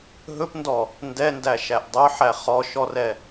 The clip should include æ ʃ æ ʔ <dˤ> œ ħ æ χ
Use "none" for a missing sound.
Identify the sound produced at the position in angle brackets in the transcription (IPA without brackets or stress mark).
dˤ